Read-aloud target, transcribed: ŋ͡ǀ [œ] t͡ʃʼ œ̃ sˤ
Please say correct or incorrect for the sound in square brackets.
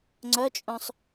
correct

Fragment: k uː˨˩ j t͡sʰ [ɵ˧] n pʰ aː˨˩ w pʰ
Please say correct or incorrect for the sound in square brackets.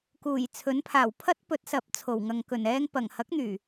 incorrect: ɵ˨˥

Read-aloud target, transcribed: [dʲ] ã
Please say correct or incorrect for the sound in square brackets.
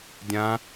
correct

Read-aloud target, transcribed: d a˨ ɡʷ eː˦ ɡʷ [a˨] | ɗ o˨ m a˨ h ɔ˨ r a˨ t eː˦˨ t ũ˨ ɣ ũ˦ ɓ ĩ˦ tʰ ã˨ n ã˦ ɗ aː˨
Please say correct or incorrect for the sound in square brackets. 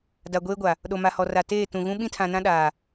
correct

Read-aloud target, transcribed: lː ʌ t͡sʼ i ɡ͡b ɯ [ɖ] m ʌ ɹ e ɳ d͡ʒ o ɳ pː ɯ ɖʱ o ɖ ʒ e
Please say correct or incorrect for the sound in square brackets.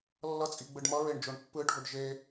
correct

